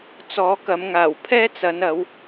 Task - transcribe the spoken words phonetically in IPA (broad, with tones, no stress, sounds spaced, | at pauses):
t͡s ɔː˨˧ k ɐ˨˧ m ŋ aː˨˩ w pʰ ɛː˥ t͡s ɐ˨˧ n ɐ˨˧ w